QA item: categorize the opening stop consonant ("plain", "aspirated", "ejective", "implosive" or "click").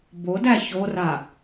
plain